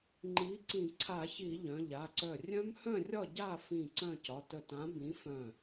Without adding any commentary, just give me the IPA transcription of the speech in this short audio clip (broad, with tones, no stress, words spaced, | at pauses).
ŋ͡ǃi˨˥ ǀĩ˧˩˧ǀʰa˧˩˧çi˧˩˧ ʎœ̃˩˧˩ʎa˩˧˩ǀœ˧˩ rʲœ̃˦˥mhœ̃˥˨rʲɒ˥˨ ɟa˥˨fĩ˧˩ ǀœ̃˥˨ cɒ˩˧˩tœ˧˩tã˨˥ bĩ˨˥fœ̃˧˩